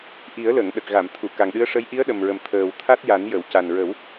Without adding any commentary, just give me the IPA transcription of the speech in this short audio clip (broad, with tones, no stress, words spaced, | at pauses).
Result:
ʔi˨˩˦ə̯lə˨˩˨ŋ ɗə˨˩k̚ɣa˨˩˨mt̪ʰu˨˩˨ ka˨˩ŋɗɨ˧˥ə̯ʂə˧˥j ʔi˧˥ə̯ɗə˨˩mɹə˨˩m t̪ʰəː˨˩wt̪ʰa˦˥t̚ja˨˩˦njə˨˩˨w ca˨˩nɹə˨˩˦w